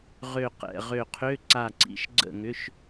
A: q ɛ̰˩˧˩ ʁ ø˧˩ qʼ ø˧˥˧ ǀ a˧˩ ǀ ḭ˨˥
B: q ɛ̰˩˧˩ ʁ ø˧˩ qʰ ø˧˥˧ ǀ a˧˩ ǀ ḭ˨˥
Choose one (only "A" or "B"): B